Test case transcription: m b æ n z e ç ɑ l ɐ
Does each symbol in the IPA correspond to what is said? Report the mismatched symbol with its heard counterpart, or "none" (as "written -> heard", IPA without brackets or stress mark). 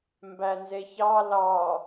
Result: ɐ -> ɑ